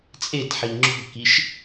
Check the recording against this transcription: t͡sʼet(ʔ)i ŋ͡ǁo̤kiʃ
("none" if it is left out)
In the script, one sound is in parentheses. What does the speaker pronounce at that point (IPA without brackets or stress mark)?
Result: ħ